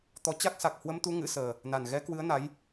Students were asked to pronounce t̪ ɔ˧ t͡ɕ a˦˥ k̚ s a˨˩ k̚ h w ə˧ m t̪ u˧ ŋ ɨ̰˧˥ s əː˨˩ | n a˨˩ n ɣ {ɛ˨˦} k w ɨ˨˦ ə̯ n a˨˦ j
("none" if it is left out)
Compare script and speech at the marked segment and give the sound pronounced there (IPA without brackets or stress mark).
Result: ɛ˨˦